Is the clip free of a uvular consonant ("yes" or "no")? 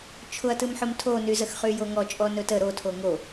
no